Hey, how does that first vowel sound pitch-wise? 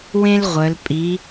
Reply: high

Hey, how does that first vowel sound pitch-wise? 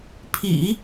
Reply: low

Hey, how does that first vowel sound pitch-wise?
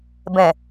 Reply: low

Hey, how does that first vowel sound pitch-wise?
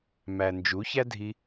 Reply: low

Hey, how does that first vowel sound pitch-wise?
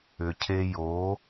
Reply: low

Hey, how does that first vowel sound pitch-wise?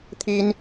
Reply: high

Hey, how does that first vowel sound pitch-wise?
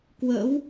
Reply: rising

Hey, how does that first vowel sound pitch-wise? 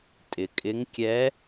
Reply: low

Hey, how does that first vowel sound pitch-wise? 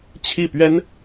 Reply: falling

